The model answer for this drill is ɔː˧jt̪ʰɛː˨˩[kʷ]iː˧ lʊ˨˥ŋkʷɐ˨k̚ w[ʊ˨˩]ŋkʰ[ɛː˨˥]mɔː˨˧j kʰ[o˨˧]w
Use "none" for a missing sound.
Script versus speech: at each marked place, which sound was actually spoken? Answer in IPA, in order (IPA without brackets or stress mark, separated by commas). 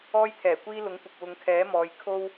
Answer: kʷ, ʊ˨˧, ɛː˨˥, o˥